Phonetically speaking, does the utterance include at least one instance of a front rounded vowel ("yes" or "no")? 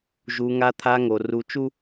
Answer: no